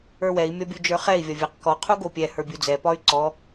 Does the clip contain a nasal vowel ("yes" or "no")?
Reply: no